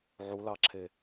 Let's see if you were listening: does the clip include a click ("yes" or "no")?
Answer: yes